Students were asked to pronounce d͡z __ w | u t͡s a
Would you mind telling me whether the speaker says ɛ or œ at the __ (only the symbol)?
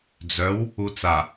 œ